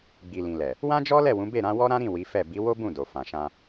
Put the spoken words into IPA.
ɡ͡b i˨ l ĩ˨ l ɛ˨ | w ã˦ d͡ʒ ɔ˦ l ɛ˦˨ w ũ˨˦ b e˦˨ ɾ ã˨˦ w ɔ˦ ɾ ã˦ ɾ ĩ˦˨ w i˨˦ f ɛ˦˨ b i˨˦ w o˦ b ũ˦˨ d o˨ f ã˨ ʃ ã˧

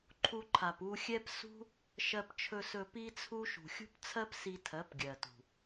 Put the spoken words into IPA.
ǃʰ u˧ ǃʰ a˨ p u˧ xʲ ɛ˦ p s ṳ˦ | ʃ ɜ˧ p t͡ʃʰ ɵ˧ s ɵ˧ p i˦ t͡sʰ u˦ ʃ ṳ˨ xʲ ṳ˦ p t͡sʰ ɜ˦ p s i˧ tʰ ɜ˨˦ p ɡʲ ɜ˨ t ṳ˨

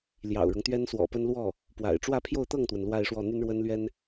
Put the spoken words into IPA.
l j ɑ̰˨˩ ʊ̯ ɻ ʊ˦ ŋ t̪ ɥ ɛ˥ n s w ɔ̰˨˩ p ə˥ n l w ɔ˥˩ | p w a̰˨˩ ɪ̯ ʈ͡ʂ w ä˥˧ pʰ j o˥˧ ʊ̯ t̪ ɤ˥˩ ŋ t̪ w ə˩ n l w a˥˧ ɪ̯ ʂ w ɔ˥˩ n̪ y˥ n ɻ w ə˥ n l ɥ ɛ˥ n

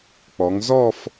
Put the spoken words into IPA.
k͡p ɔ˩˧ ŋ z ɔ˥˧ f

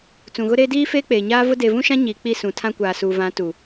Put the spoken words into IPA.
t͡s ũ˨ ɣ ʊ˦ ɾ eː˦ d iː˦ f eː˦ k͡p eː˨ ɲ aː˦ v ʊ˦ d e˨ v ũ˦ ʃ ã˦ ɲ iː˨ k͡p i˦˨ s ũ˨ tʰ ã˦ kʷ aː˨ s uː˨ v ã˨˦ t u˨

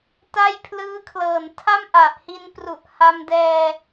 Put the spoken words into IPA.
t a˥˩ j pʰ l ɯː˦˥ kʰ l ɤː˨˩ n tʰ a˥˩ m ʔ a˨˩ ʔ h i˧ n p r u˨˩ ʔ h a˧ m d ɛː˧

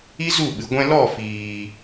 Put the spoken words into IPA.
i˦ z u˦˨ ɓ ɨ˨ ɡʷ ɛ̃˧ l ɔ˦˨ f iː˨

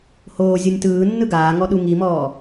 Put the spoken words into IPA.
h oː zʲ o nʲ t ɯː nː ɯ ɡ aː ŋ ɔ ɗ u ŋ i m ɔː

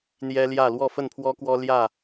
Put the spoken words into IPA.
n̪ j ɛ˦ l j ä˥˨ l w ɔ˥˨ f ə˥˨ n pʰ w ɔ˦ k w ɔ˦ l j ä˥˨

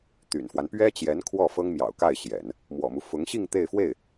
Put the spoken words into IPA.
t̪ y̰˨˩ n f w a˦ n p ɥ ɛ˥ t͡ɕ j ɛ˧˥ n kʰ w ɔ˥˩ f ɤ˥ ŋ m j ɑ̰˨˩ ʊ̯ k a˥˩ ɪ̯ ɕ j ɛ̰˨˩˦ n | m w ɔ̰˨˩ m u˦ f ʊ˧˥ ŋ ɕ i˥˧ ŋ t̪ e˥˧ ɪ̯ f w e˥˩ ɪ̯

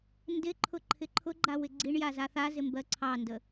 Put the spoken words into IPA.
n d ɪ ǃʰ ʊ ǃʰ ɪ ǃʰ ʊ ɡ͡ǃ a w ɪ ɡ͡ǀ i ɳ j a z a θ a z ɪ m b ɜ ǀʰ ɑ n d ə

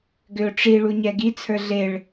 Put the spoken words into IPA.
ɡ ʏ ʊ̯ ʈ͡ʂ i ɭ u ɲ ɛ ɡ i t͡sʰ ə˞ ɮ e ɭ

